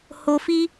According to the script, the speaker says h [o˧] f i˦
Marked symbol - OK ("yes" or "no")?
yes